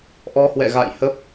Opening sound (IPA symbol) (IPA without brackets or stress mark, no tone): ʔ